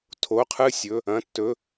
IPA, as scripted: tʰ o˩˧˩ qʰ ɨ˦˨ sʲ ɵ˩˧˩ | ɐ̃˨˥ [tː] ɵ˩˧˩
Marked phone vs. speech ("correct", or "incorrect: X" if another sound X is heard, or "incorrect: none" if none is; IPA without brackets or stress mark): correct